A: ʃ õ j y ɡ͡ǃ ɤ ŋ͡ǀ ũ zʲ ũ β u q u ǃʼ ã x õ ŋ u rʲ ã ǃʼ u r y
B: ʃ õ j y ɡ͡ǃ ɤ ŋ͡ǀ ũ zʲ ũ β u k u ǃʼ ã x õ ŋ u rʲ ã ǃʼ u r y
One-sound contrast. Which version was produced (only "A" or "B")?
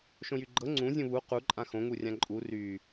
A